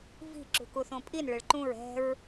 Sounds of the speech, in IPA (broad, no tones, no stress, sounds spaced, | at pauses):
v i̤ ǁ ṳ k u θ õ pʼ i n ɭ ɘ ɭ ǃ ũ ɹ ɛ̤ ɹ